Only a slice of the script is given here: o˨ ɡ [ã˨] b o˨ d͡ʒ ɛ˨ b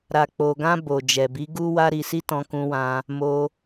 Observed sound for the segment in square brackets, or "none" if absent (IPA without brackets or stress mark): ã˧